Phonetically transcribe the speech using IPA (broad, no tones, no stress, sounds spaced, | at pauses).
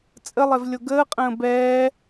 t͡sʼ ə lˠ ɛ v lʲ o ɡ əː qʼ ə̃ː b ɛː